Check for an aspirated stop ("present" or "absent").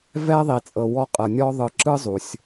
absent